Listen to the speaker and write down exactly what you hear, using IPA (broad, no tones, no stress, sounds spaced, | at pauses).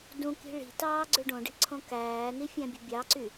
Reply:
d ũ k i̤ ɭ i̤ t ɑː ɡ͡ǀ ø ɖ õ ɖ i̤ ǀʰ õ k æː n i fʲ æ̃ bʲ o̤ bʲ ɑ ǀ y